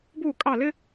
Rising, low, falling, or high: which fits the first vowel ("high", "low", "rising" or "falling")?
falling